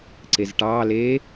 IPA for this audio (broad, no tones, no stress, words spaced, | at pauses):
ǀezʈɑːleː